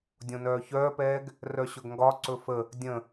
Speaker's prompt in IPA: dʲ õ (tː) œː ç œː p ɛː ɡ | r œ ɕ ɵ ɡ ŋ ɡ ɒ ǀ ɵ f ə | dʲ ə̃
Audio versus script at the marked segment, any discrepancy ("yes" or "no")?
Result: yes